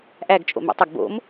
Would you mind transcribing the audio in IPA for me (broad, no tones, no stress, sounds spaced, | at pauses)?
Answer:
ʔ æ ɡ t͡ʃʼ o̰ m ḭ tˤ ə ɡ b o̰ m